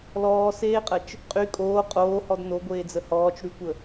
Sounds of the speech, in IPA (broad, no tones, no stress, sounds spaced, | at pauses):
l ɔː s eː qʼ ə t͡ʃ | qʼ y kʼ oː qʼ oː h ɔ d n o ɡʷ eː d͡z ə h ɔː t͡ʃ ɽ y kʷ ə